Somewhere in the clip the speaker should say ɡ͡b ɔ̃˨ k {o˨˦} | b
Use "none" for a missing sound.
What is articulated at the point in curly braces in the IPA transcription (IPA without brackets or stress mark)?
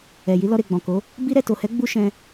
o˨˦